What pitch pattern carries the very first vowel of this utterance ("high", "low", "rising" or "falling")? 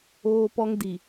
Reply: high